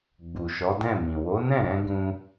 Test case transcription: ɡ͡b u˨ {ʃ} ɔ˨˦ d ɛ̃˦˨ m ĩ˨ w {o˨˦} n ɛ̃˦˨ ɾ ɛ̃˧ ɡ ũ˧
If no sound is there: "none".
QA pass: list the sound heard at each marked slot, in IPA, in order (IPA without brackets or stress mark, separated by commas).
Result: ʃ, o˨˦